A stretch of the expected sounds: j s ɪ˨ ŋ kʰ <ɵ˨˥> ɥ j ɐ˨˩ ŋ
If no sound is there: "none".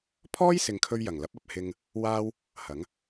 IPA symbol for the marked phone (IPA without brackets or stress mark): ɵ˧